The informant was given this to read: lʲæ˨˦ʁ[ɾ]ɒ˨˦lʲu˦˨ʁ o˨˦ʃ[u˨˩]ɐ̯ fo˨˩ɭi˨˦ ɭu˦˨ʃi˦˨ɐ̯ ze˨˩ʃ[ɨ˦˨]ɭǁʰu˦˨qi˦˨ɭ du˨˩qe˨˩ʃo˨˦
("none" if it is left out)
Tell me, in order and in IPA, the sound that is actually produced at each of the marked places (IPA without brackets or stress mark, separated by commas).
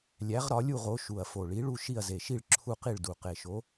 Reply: ɾ, u˨˩, i˦˨